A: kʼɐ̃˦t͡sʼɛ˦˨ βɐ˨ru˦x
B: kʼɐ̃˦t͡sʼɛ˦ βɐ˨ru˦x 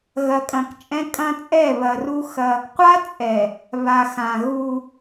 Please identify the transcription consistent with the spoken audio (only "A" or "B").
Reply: A